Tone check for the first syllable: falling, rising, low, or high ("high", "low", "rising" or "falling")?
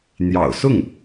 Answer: low